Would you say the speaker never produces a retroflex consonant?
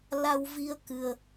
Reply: yes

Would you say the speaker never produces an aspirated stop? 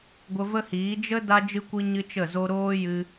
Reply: yes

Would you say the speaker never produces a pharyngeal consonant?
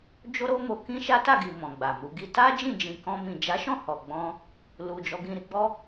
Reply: yes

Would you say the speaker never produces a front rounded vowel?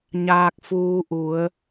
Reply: yes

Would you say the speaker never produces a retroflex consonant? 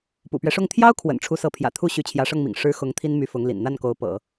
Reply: no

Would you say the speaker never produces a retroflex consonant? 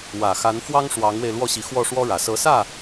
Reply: no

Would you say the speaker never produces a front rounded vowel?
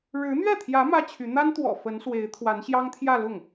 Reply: no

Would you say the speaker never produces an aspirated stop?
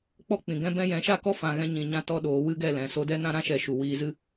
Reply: yes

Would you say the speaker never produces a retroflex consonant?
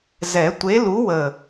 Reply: yes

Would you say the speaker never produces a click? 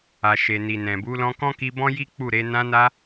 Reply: yes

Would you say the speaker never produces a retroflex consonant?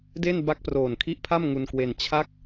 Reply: yes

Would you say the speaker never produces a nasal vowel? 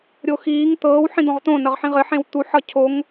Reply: no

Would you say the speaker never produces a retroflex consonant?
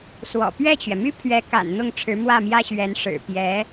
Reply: no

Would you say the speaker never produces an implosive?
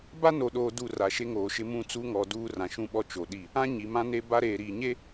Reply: no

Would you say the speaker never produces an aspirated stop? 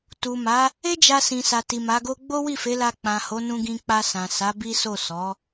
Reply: yes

